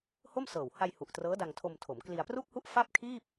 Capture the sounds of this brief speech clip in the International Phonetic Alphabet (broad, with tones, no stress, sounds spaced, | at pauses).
h o˥˩ m s ɤː˨˩ w h a˧ j h u˨˩ ʔ t r ɤː˦˥ d a˧ ŋ tʰ o˧ m tʰ o˩˦ m k l i˧ a̯ p r u˥˩ k̚ h u˥˩ ʔ f a˥˩ p̚ kʰ iː˥˩ p̚